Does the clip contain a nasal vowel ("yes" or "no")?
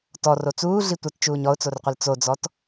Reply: no